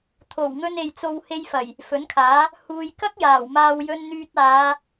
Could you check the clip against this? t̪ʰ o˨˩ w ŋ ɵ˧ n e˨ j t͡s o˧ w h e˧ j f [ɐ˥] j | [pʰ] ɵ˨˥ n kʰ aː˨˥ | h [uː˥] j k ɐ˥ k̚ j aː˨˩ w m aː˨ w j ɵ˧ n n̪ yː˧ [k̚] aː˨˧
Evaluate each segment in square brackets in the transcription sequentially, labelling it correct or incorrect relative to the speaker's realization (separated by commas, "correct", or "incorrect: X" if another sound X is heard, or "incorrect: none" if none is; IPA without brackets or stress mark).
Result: incorrect: ɐ˨˩, incorrect: f, incorrect: uː˨, incorrect: t̚